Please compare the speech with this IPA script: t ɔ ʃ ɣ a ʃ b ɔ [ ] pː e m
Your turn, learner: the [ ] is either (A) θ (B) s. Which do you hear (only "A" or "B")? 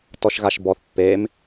A